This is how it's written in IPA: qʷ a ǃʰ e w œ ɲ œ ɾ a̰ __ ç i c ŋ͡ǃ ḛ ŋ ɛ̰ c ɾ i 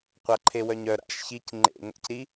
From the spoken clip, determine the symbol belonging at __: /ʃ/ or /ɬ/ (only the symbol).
ʃ